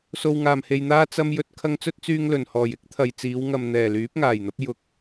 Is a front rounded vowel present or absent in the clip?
present